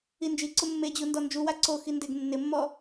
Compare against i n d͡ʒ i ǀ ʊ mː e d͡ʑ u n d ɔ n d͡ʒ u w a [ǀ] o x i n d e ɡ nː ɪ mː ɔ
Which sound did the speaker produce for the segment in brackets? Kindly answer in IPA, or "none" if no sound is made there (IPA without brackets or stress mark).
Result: ǀ